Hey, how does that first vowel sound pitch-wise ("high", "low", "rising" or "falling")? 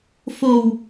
low